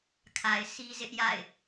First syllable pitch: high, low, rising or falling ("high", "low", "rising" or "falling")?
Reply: low